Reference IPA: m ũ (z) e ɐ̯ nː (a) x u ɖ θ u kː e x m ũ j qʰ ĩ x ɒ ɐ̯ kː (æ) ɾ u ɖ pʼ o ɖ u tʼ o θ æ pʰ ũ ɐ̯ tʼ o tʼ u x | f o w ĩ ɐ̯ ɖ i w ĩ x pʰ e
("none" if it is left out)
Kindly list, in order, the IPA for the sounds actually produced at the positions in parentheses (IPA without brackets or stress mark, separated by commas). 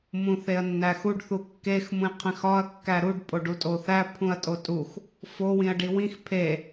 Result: θ, æ, æ